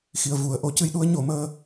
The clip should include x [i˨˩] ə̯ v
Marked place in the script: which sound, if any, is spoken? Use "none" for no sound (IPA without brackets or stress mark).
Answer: i˨˩